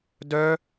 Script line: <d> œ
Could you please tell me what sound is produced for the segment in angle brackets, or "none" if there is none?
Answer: d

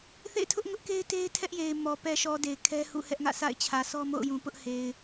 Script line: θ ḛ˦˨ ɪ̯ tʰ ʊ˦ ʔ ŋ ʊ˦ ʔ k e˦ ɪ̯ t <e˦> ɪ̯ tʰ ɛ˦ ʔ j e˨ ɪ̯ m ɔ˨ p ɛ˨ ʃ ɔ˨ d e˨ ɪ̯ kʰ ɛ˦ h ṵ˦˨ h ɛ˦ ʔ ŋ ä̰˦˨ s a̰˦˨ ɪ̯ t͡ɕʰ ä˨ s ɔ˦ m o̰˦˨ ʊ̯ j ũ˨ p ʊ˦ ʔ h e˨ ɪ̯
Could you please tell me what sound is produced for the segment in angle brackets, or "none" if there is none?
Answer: e˦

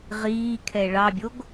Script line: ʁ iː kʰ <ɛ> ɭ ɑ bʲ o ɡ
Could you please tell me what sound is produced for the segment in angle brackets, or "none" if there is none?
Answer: ɛ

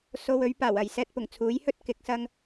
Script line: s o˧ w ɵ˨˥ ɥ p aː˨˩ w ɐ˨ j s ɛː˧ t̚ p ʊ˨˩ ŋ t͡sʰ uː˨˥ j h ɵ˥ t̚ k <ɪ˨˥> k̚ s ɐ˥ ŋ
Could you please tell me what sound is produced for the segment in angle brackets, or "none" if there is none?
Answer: ɪ˨˥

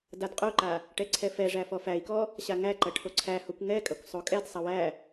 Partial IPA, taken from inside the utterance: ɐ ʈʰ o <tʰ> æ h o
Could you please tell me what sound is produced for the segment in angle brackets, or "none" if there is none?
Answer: ǀʰ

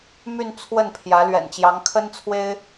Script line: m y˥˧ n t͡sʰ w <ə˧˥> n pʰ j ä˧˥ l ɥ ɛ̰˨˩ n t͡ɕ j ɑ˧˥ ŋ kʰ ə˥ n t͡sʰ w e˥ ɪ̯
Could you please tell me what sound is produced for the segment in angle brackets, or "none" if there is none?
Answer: ə˥˩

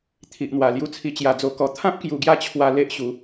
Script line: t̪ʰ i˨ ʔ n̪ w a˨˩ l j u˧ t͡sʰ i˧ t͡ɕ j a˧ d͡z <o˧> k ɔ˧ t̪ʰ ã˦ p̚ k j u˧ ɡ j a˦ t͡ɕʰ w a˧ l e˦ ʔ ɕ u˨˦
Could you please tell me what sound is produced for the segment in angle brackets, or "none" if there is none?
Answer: o˧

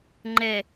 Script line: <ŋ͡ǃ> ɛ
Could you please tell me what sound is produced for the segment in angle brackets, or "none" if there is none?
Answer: ŋ͡ǃ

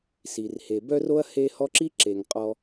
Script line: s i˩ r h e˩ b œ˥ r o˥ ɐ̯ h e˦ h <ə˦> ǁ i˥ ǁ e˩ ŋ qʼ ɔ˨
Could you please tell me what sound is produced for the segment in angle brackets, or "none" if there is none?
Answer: ɔ˦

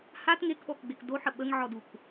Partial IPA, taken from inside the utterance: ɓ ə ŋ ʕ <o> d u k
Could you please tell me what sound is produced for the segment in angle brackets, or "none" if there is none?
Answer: ɔ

